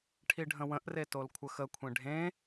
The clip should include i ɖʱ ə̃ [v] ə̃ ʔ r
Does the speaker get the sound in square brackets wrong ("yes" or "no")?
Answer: yes